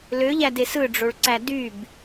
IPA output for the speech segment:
løʎædes ɯɖ͡ʐoɭǀæ dyb

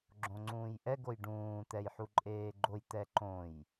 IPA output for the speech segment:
ɡ͡ǁõŋ͡ǀũːjʔɛ ɡojɖũː t̪ɛjħuǃʼeːɡ͡ǃoj t̪ɛǃõj

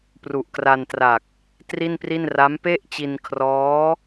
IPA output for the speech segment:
pru˨˩ʔkra˧ntra˨˩k̚ | tri˥˩npri˥˩n ra˦˥mpe˥˩ʔt͡ɕi˧nkʰrɔː˦˥

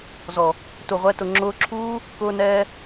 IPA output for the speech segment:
zɔ˨ | tu˨ʁʷɛ˨˦ tʊ˨ŋ͡ǁʊː˧ǁʰuː˦ | kʊː˧nɛː˧

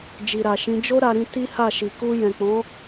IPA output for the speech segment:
d͡ʒi˨ɾa˨ʃĩ˨˦ d͡ʒo˦ ɾa˧ɾĩ˧ ti˦ha˦˨ʃi˨ ku˧jɛ̃˨k͡pɔ̃˨˦

